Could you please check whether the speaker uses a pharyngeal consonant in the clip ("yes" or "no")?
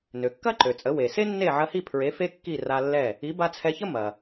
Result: yes